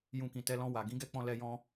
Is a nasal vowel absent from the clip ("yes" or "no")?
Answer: no